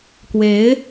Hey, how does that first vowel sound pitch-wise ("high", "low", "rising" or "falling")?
rising